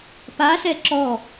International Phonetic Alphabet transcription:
p a ɬ ɛ ǁ ɔ

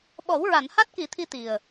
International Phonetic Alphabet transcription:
ɓ ɔ˨˩˦ w ɹ a˨˩˨ n h a˦˥ t̚ k i˨˩˦ t̪ʰ i˧ t̪ i˨˩ ə̯

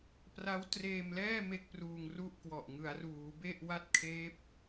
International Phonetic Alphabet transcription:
p r a˦˥ w t r eː˧ m l ɛː˥˩ m e˥˩ k̚ p r uː˧ ŋ r u˥˩ ʔ k w ɔ˨˩ ʔ ŋ ɯ˩˦ a̯ r uː˩˦ b e˥˩ ʔ w a˥˩ t̚ kʰ eː˦˥ p̚

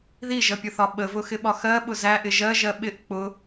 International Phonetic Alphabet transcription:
ð i ʒ ʌ pʲ ʊ θ ɒ ɓ ə v ʊ x ɪ ɓ ɒ x ɜ ɓ ʊ z æ ʔ ɪ ʒ ɜ ʒ ɜ ɓ ɪ ʔ k͡p ʊ

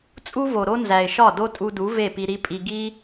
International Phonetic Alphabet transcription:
t͡sʼ u˥ v o˩ ɾ o˥ n z æ˩ ɪ̯ ʃ ɒ˥˩ d o˥ tʼ u˧ d u˩˥ v e˥˩ p i˧ ɾ i˥ pʼ i˧ ɡ i˥

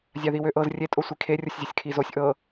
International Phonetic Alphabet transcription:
zʲ a ð i w ø ʔ ɤ z rʲ e tʼ o sʷ i kʰ e rʲ o sʲ zʲ ɤ sʲ kʰ i z o sʲ ʔ ɤ

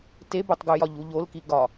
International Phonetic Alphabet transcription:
t e b o tˤ ɡ u j ɒ ʎ u ʎ o l k i ɡ ɒ

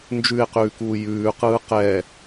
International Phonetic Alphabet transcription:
n d͡ʒ ʉ e̯ q ʉː k uː j ʉː q ɯː q ɛː

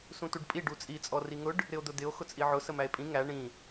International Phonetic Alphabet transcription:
s ũ t u ɖ pʼ i ɖ u t͡sʼ i t͡sʼ ɔ r i ŋ ʊ ɖ | ɾ ɪ o̯ d̪ ʊ d̪ ɪ o̯ x ʊ t͡sʼ i ʕ ʊ s ə m æ e̯ pʼ ĩ ŋ æ ɳ ĩ

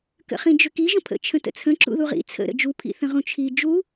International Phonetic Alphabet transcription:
k ə̰ χ ĩ d͡ʒ ʏ k i ʒ ə̃ pʰ ə̰ t͡ʃʰ ə̃ t ə̰ t͡sʰ ə̃ ǁ ṵ ð u ʁ ḭ t͡sʰ ə̰ ɾ ə̰ d͡ʒ u pʰ ḭ θ ə̃ ʁ ũ t͡ʃʰ i d͡ʒ u

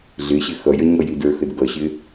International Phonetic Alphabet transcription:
ɮ ɪ ɕ ɪ x ʌ j ə ɲ ɔ j i d ə˞ x ə d ɡ ʌ ɕ ɪ

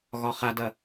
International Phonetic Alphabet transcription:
ɣ ɒ χ a d ɐ

